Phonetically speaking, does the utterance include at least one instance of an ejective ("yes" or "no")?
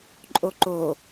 yes